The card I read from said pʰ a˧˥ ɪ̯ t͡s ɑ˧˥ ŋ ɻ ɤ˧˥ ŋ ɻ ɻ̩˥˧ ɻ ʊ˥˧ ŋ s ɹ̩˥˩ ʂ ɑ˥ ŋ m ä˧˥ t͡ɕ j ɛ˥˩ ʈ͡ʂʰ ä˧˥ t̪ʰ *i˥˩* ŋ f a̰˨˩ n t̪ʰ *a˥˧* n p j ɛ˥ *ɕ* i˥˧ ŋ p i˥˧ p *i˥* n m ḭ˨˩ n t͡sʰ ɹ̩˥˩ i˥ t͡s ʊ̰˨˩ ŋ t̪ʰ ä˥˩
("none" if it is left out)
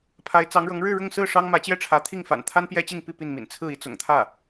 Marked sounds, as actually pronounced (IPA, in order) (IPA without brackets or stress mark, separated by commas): i˥˩, a˥, t͡ɕ, i˥˩